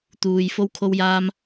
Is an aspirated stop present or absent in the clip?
present